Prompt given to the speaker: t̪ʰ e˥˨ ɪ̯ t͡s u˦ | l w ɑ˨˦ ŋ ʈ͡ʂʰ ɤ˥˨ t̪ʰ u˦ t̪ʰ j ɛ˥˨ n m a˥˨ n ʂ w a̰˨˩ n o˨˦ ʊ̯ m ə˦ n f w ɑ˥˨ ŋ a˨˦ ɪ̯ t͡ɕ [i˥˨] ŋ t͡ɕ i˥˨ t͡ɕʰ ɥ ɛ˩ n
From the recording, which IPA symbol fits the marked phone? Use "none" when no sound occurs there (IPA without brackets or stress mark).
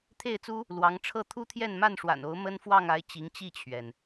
i˨˦